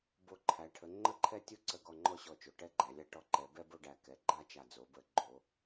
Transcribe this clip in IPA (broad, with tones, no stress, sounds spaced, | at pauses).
b o˧˩ ǃʰ æ˩˧ ʈʰ ə˩˧ ŋ͡ǃ ə˥˧ ǃʰ ɛ˥˧ tʲ o˥ ǀ ə˧˩ ɡ ɔ˧˩ ŋ͡ǃ ɔ˥ ɕ ɔ˧˩ t͡ʃ o˩˧ ʈ ɛ˥˧ ɡ͡ǃ æ˩˧ lʲ a˥˧ ʈ ɔ˧ ǃ ɛ˩˧ b ɛ˥ b o˥˧ ɖ æ˧˩ k ɛ˩˧ ɡ͡ǃ a˥˧ t͡ʃ a˧˩ d͡z o˩˧ b ə˧˩ ɡ͡ǃ o˩˧